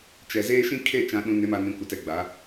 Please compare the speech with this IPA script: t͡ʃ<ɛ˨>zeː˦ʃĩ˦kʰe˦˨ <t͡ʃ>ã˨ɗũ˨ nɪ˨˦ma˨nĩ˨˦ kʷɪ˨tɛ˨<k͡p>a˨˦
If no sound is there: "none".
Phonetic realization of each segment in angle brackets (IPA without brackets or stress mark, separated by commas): ɛ˨, t͡ʃ, ɡ͡b